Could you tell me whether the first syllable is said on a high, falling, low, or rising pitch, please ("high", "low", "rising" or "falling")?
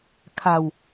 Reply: low